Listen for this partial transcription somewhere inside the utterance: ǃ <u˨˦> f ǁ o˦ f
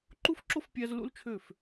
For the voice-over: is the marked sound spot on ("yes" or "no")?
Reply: no